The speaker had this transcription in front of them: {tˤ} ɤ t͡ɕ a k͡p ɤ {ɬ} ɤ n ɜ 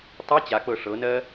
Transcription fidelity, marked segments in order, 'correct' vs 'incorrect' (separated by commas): correct, incorrect